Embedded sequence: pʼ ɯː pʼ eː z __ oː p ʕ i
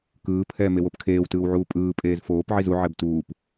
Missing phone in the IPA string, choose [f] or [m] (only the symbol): f